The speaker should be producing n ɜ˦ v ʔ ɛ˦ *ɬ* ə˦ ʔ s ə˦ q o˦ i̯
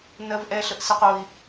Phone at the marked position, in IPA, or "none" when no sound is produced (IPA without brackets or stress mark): ɬ